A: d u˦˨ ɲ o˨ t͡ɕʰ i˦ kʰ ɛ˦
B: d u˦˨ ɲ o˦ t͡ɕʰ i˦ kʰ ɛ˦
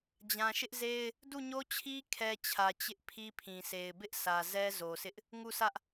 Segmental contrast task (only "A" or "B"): B